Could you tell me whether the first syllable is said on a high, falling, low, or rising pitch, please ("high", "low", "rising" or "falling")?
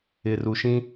low